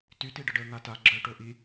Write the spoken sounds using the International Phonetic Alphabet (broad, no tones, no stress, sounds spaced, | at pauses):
t y t i ɖ ə ɖ əː ŋ a t a ɡ͡ǁ œ ʈ o ʔ i